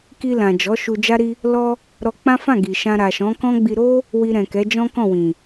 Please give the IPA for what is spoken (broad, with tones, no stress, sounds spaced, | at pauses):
k i˧ l ã˨ d͡ʒ ɔ˨˦ ʃ u˧ d͡ʒ a˦ ɾ i˦ | l ɔ˧ | ɾ ɔ˧ k͡p ã˦ f ã˦˨ ɡ i˨ ʃ ã˧ ɾ a˨ ʃ ɔ̃˨˦ k ɔ̃˦ ɡ͡b i˧ ɾ o˦ | w i˧ ɾ ɛ̃˨ k ɛ˨˦ d͡ʒ ɔ̃˦ k ɔ̃˦˨ w ĩ˨